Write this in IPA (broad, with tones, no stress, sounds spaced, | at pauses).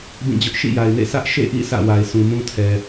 b ĩ˦˨ d͡ʑ ʊ˦ ʔ ʃ ḭ˦˨ j a˨ ɪ̯ n ḛ˦˨ s ä˦ ʔ ʃ ḛ˦˨ ʔ ḭ˦˨ sʰ ä̰˦˨ w a˨ ɪ̯ s ũ˨ m ũ˦ tʰ ɛ˨